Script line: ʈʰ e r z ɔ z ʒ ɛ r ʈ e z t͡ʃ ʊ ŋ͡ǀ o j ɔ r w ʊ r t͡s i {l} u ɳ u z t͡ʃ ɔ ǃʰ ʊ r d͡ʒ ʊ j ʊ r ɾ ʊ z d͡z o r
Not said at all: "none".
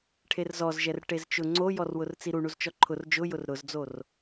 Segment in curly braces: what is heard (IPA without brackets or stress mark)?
ɾ